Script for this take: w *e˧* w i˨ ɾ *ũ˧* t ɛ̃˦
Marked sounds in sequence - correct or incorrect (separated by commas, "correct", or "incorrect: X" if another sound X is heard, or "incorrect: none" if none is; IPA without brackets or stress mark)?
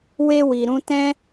correct, correct